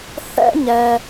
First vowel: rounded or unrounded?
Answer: unrounded